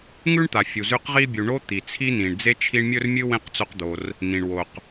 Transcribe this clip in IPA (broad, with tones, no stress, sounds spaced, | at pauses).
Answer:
ŋ ʉ˥ ɳ t̪ a˩ fʲ u˩ z ʉ˦ q ʁ i˥ bʲ u˨ ɳ o˥ t̪ i˩ t͡sʰ i˥ n ĩ˩ ɳ d͡z e˥ t͡ʃʰ i˦ ɳ mʲ ɵ˥ r mʲ ɨ˥ w ẽ˥ q t͡s o˦ q d̪ o˨ r | n ĩ˩ ɳ w o˩ q